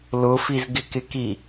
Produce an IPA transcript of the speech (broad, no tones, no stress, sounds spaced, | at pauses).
l ʊ f i z ɡ ɪ k ɪ k i